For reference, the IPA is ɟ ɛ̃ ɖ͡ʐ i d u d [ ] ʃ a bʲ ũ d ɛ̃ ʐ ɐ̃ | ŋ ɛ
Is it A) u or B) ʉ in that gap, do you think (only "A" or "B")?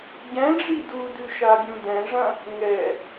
B